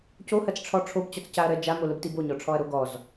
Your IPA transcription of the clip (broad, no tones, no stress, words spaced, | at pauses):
cohɜt͡sʈ͡ʂʰɔ ʈ͡ʂʰobt͡ɕɔt͡scaɐ̯ɾɜ d͡ʒamoləbtib oɲɔʈ͡ʂʰɔɐ̯ɾo ɡɔz